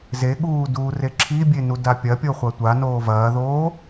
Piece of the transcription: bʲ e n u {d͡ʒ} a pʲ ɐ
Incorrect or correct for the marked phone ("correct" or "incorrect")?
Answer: incorrect